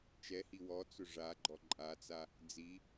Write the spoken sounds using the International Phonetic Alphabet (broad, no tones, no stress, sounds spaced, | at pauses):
t͡ʃ ɛ h i w ɔ t͡s ʊ ʐ a ɡ͡ǃ ɔ ǃʼ a t͡s a | d͡z i